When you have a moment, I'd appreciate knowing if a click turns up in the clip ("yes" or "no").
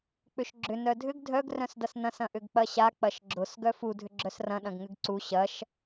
yes